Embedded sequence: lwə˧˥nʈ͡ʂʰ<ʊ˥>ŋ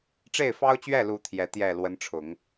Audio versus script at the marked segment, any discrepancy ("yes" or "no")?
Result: yes